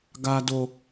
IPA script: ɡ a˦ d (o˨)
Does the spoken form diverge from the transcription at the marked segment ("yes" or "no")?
yes